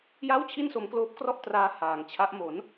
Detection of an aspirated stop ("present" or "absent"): present